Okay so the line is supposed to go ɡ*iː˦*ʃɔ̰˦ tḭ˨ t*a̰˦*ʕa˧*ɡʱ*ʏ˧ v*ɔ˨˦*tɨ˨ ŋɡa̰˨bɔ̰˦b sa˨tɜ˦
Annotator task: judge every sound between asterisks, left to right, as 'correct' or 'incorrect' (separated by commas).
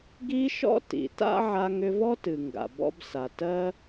incorrect, correct, incorrect, incorrect